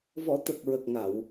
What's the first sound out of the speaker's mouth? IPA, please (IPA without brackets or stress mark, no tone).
v